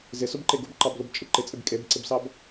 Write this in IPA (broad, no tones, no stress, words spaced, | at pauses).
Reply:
zɪsʊbǃe ɡʊbǃɑblʊbt͡ʃʼɪ ǃɪt͡sʼɪb kʼebǀɪbsɑb